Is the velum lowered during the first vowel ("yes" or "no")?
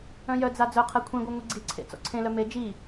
yes